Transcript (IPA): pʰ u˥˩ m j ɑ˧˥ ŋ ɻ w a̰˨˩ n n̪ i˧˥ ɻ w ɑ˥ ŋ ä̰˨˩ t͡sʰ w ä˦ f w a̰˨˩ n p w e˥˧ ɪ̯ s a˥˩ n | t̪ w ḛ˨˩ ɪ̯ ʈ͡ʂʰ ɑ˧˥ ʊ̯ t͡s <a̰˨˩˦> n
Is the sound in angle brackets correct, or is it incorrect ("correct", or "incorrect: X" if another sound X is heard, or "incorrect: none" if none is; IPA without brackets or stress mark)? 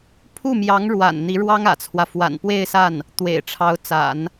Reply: correct